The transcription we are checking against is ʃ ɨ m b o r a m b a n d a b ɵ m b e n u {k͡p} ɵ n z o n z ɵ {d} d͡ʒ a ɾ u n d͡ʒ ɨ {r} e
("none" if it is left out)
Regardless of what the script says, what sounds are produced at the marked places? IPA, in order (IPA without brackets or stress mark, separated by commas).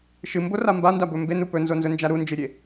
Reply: p, n, ɾʲ